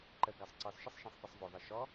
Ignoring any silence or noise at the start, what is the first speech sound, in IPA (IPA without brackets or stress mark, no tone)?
ǃ